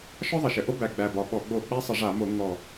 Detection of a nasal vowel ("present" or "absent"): absent